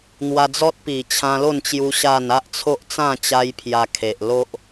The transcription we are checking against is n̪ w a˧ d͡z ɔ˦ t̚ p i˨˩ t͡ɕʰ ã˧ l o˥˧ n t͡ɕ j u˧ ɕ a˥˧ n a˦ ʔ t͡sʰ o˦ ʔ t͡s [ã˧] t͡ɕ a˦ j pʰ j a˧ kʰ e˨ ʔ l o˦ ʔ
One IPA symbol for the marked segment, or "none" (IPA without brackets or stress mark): ã˥˧